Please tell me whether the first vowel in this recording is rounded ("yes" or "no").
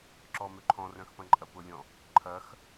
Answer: yes